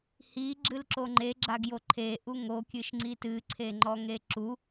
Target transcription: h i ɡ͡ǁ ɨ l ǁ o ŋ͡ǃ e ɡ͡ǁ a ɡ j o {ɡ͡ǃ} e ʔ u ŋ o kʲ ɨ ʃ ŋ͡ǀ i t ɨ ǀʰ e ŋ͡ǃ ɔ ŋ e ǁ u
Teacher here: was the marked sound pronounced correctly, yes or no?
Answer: no